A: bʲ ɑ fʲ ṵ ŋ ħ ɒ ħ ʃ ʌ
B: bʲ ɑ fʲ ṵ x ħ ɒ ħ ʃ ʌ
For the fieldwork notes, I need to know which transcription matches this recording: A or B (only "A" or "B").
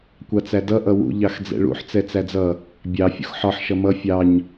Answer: B